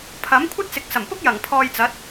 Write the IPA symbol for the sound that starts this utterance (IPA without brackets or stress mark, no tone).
pʰ